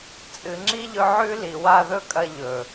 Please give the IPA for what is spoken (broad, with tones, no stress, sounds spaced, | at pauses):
t͡sʼ ɨ˨ ŋ͡ǁ i˦ ʎ ɵ˧ ʕ ʉ˦ l i˨ w a˦˨ ð ɵ˦ kʼ ɐ˦ ʎ ɵ˨